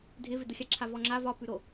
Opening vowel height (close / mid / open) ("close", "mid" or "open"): close